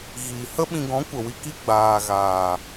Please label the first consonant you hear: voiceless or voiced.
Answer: voiced